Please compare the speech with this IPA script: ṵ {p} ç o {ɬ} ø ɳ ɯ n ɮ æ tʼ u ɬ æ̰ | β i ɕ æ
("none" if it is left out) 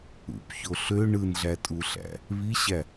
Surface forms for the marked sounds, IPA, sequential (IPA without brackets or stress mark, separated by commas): p, ɬ